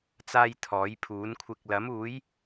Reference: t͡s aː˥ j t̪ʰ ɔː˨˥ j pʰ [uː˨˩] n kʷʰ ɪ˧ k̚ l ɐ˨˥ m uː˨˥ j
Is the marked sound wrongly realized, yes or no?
yes